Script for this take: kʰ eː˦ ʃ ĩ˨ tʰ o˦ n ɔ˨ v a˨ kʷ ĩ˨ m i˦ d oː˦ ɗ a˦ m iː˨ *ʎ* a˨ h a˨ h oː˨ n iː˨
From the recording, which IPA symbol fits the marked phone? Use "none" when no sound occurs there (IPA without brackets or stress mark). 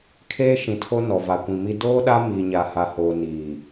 ɲ